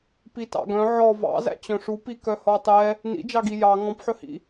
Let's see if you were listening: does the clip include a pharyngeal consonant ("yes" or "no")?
yes